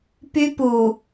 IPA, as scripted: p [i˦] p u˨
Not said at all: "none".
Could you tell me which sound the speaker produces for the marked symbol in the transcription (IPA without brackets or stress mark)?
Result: y˦